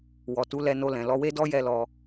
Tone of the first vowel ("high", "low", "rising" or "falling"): low